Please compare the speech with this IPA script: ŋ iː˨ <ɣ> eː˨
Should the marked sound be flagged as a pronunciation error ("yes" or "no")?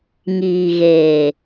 no